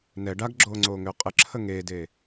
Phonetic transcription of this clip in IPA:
n ɛ ɖ a ɡ ɡ͡ǁ oː ŋ͡ǀ oː ŋ ʏː qʼ ə ǁʰ ə ŋ eː d eː

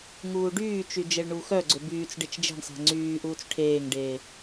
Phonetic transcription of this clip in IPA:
ŋ uː ɖ yː t͡ʃ y d͡ʒ e ɭ ɳ uː x œ ɡ͡ǀ ʏ b yː t͡s ɖ e t͡ʃ d͡ʒ e̤ ɳ sˤ ɛ̤ ŋ͡ǀ yː ʔ uː t͡s ʈʰ eː ŋ ɖ eː

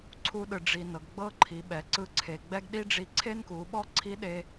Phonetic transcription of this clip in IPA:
ǀʰ u˧ ɗ ɯ˩ ɖ͡ʐ i˩ n ɤ˩ ɡ ɡ͡b ɤ˥ ǃʰ i˩˧ ɓ ɛ˩˧ ǀ ɯ˧ ǀʰ e˩ ɡ͡b ɛ˥ ɡ ɗ i˥ ɖ͡ʐ i˧ ǀʰ e˥ n k u˩˧ ɓ ɔ˥ ǀʰ i˧˥ ɗ e˧

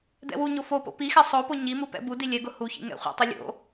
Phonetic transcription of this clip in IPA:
d ɛ̰ w u ɲ o f o p o̰ p i x ɛ sˤ o p o ɲ i m u p ɛ̰ b u d i lʲ ɛ ɡ ʊ h u ç ḭ ŋ ɛ̰ χʷ ɛ̰ tˤ ʊ lʲ o̰

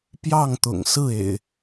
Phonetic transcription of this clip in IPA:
p j ɑ˥˨ ŋ t̪ ʊ̰˨˩ ŋ s ɹ̩˥˨ ḛ˨˩ ɪ̯

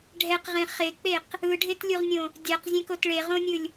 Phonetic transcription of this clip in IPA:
ɖʱ ɛ q ʁ ẽ χ e k͡p e q | ɯ ɖʱ e t lʲ u ʁ nʲ õ | dʲ a q zʲ ɛ̃ k o t ɭ e ʁ õ nʲ ɯ lʲ

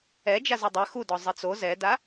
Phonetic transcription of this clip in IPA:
ɛ d͡ʒ a z u dˤ ɛ x u d ɔ zˤ ɘ t͡s o z ɛ d a

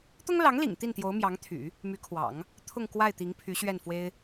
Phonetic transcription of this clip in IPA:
t̪ ʊ˥ ŋ l ɑ˧˥ ŋ l ḭ˨˩ ŋ t̪ i˥˩ n t̪ j o˧˥ ʊ̯ m j ɑ˧˥ ŋ t̪ʰ y̰˨˩˦ | m y˧˥ kʰ w ɑ̰˨˩˦ ŋ | t̪ʰ ʊ˥˧ ŋ k w a˥˩ ɪ̯ t̪ i˧˥ ŋ pʰ y˧˥ ɕ ɥ ɛ˥˩ n f w e˥ ɪ̯

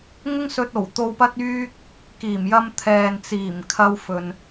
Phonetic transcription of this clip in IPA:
ŋ ʊ˥ ŋ s ɵ˧ t̚ o˨˩ w t̪ o˧ w p ɐ˥ t̚ yː˥ k̚ | k iː˨˩ m j ɐ˧ m t̪ʰ ɛː˨ n t͡s iː˨˩ m kʰ ɐ˧ w f ɵ˨ n

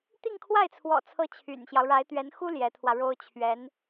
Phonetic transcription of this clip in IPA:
t̪ i˥˧ ŋ kʰ w a˥˩ ɪ̯ t͡sʰ w ɔ̰˨˩ t͡sʰ ɤ˧˥ t͡ɕʰ y̰˨˩ n ɕ j ɑ˦ ʊ̯ ɻ a˧˥ ɪ̯ t̪ ɥ ɛ˧˥ n x u˥ l j ɛ˧˥ t̪ʰ w ä˧ ɻ o˥ ʊ̯ t͡ɕʰ ɥ ɛ˧˥ n

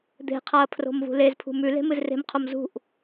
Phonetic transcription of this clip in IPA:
d̪ e̤ qʰ a ɐ̯ pʰ r o̤ m v ṳ l e z pʰ ṳ m ʉ l e̤ m ɨ z r e̤ m qʰ o m z ṳ ʔ

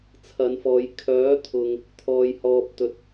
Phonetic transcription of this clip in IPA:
t͡sʰ ɐ˨˧ n f ɔː˨˧ j kʰ œː˨˥ t̪ʰ ʊ˨ ŋ | t̪ʰ ɔː˨ j h ɔː˨ p̚ t̪ ɵ˨ t̚

